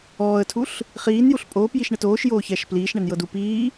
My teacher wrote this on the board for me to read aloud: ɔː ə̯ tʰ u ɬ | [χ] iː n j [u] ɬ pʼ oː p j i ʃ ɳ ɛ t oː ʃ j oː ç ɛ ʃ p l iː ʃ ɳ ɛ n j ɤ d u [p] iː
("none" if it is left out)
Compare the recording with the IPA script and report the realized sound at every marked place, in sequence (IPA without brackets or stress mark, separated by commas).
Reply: χ, u, p